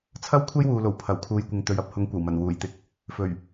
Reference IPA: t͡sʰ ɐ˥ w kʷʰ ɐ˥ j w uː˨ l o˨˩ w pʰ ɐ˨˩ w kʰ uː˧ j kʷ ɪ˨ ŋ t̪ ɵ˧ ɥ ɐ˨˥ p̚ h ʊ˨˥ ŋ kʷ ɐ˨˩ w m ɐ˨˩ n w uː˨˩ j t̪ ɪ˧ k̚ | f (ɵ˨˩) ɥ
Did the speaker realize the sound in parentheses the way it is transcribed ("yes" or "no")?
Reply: yes